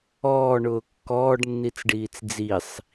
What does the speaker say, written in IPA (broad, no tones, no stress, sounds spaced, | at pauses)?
ɔː ɳ ʊː kː ɔː ɖ nː i t͡s ɖ iː t͡s d͡z i sˤ